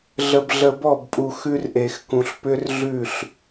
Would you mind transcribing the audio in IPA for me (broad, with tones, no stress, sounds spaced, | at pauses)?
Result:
ɮ ə˨ b ɮ ə˨ b ɔ˦˨ b pʼ u˨ x ʉ˦ r ʔ e˨ x k ũ˨ ɬ p ʏ˦ r ɮ ʉ˦˨ ɬ